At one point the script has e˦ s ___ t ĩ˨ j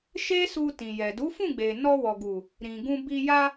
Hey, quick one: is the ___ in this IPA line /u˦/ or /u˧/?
u˧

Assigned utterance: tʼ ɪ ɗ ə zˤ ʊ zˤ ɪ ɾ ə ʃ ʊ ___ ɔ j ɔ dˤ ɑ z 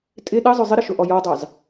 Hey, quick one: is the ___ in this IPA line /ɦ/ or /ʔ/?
ʔ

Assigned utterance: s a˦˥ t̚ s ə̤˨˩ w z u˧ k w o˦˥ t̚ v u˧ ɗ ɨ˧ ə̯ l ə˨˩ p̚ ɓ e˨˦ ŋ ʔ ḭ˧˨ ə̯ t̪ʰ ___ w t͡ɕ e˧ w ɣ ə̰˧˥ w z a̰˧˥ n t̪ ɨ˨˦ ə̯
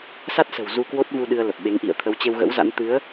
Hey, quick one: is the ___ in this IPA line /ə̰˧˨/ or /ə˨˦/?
ə˨˦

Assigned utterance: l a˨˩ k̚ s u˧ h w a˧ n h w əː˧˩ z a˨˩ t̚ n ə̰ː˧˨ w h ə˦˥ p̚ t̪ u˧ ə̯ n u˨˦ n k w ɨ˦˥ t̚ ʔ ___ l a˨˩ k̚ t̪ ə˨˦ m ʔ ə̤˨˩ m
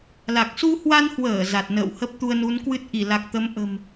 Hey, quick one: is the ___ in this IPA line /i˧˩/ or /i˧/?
i˧˩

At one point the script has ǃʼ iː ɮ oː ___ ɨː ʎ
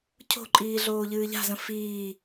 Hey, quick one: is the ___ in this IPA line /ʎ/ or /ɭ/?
ʎ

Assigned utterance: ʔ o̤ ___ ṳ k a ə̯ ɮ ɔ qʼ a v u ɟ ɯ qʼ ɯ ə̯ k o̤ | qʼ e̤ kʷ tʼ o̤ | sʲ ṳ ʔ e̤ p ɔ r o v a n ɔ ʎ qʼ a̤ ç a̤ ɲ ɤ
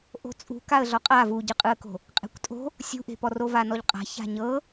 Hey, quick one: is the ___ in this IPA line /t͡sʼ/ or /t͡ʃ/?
t͡sʼ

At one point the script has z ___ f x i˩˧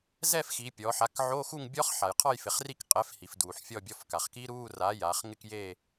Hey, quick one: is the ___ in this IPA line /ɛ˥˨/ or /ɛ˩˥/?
ɛ˥˨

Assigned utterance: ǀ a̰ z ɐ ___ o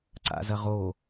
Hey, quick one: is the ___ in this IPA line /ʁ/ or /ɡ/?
ʁ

